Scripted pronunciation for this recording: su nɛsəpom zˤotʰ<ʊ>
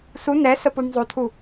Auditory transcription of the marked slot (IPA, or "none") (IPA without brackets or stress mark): u